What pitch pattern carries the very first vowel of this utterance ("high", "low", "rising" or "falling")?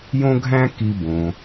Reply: high